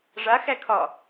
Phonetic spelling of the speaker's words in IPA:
ʐ a x æ kʰ ɒ

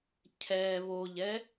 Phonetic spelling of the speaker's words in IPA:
cʰ ɛ β o ʎ ɛ

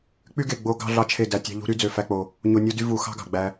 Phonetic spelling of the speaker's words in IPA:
k͡p y˦ ɡ e˨ ɡ͡b o˧ ɡ ɑ̤˧ ɮ ɑ˧ t͡ʃʰ e˦˨ d æ˧ tʲ ɑ̤˦ ʎ ṳ˦ ɾ y˦ d͡z ø˧ f æ˦ k͡p o˧ | ɲ o˧ nʲ u˦ d y˦ v u˧ x ɑ̤˦ ɡ ɑ̤˨ ɡ͡b æ˧

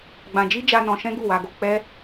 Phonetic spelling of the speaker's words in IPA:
ɡ͡b ã˧ d͡ʒ i˦ d͡ʒ a˧ n ɔ̃˧ ʃ ɛ̃˦ ɡ u˦˨ w a˧ ɡ o˧ k͡p ɛ˦

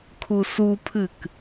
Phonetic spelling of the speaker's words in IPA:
kʰ u s u pʰ ɨ k

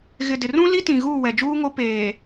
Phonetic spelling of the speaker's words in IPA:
ɣ ɪ˨ d ɪ˨ r ũ˦ l i˦ t ĩ˨ ɣ uː˦˨ w ɛ˨ d͡ʒ uː˦ ŋ o˦ p eː˨

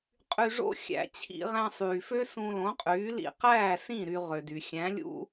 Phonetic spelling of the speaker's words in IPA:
qʼ y˧ ʐ o̰˥ xʲ æ̰˧ t͡ɕʰ ḭ˧ ʁ æ̃˧ sˤ yː˩ f ø˥ s ũ˧ l õ˩˥ qʼ yː˩˥ l ḭ˧ q æː˥˩ s ĩ˥˩ ɾ y˧ ʁ ø˩ d y˩ xʲ æ̃˩˥ lʲ ṵ˥

